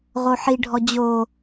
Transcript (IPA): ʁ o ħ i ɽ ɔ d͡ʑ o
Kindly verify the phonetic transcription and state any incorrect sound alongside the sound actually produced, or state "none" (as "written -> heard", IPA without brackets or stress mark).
ɽ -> ɖʱ